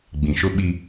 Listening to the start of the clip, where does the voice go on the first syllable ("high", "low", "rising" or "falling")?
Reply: low